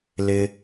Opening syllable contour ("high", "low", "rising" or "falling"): low